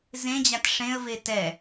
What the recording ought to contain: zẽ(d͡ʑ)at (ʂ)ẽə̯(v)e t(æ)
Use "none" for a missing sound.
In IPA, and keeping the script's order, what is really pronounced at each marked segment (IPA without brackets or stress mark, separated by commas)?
d͡ʑ, ʂ, v, ɛ